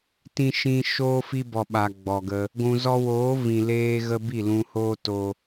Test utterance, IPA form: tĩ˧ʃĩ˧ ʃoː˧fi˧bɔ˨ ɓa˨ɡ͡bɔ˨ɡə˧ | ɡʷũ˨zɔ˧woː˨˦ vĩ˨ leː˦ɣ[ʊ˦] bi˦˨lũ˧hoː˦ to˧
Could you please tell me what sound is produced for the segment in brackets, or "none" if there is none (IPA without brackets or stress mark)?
ə˦